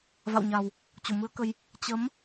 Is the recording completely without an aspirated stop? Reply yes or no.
yes